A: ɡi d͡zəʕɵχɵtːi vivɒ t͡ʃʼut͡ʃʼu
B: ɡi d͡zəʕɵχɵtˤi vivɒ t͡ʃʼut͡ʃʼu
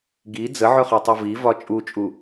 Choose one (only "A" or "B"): B